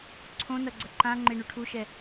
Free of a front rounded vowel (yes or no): yes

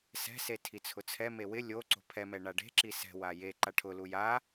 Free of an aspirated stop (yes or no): no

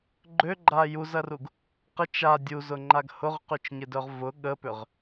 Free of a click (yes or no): no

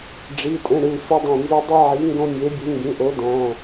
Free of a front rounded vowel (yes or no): no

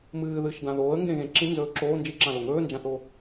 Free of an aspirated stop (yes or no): yes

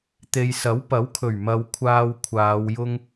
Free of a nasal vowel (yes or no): yes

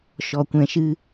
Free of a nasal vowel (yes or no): no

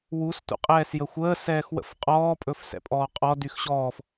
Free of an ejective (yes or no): no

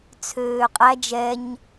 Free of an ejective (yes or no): no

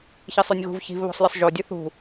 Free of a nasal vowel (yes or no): yes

